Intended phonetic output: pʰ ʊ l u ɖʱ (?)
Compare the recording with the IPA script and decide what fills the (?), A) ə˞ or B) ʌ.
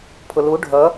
B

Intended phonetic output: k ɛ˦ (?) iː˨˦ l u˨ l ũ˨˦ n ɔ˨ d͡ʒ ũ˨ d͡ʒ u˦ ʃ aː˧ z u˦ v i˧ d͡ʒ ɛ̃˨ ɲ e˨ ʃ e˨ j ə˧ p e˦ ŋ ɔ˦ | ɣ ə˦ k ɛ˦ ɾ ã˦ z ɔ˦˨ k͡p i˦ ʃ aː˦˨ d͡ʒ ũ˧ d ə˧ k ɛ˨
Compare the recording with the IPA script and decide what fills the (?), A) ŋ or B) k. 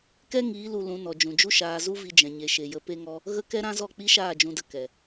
A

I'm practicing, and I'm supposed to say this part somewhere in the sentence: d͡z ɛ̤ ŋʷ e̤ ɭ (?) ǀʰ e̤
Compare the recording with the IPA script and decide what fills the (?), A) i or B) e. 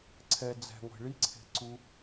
A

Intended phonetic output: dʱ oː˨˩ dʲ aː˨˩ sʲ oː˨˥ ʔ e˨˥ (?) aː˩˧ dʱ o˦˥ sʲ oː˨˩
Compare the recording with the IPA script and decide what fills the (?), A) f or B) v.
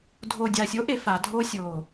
A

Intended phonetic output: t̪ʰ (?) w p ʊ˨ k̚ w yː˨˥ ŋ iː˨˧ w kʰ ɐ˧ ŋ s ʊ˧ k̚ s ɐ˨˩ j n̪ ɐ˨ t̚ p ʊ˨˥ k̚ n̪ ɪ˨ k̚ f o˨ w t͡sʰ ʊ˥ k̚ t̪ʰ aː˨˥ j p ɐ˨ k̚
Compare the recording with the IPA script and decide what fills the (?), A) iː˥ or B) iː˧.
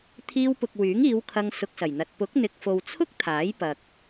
B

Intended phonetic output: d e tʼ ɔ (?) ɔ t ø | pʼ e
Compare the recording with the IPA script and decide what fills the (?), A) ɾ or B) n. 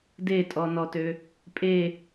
B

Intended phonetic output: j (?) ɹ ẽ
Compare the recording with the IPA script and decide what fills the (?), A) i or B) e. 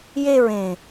B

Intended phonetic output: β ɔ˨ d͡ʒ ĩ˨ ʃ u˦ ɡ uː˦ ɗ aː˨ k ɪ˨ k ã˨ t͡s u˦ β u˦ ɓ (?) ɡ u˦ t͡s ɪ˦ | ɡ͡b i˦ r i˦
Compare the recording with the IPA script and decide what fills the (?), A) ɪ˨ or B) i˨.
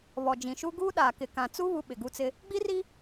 A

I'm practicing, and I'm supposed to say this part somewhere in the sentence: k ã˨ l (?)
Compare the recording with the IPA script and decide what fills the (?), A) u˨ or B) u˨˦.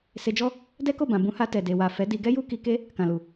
A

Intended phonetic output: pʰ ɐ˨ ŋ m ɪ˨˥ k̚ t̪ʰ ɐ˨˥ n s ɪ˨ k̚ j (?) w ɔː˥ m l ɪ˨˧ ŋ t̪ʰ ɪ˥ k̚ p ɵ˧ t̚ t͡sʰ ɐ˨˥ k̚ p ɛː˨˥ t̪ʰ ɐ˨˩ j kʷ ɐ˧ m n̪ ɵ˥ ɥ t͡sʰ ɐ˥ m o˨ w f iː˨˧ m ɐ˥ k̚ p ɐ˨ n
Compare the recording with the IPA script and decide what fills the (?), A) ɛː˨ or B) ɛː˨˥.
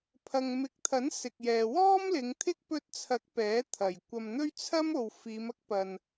A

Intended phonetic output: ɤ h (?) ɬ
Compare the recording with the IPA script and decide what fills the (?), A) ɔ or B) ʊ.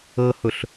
B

